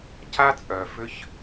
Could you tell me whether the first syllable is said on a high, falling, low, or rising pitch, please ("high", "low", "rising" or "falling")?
high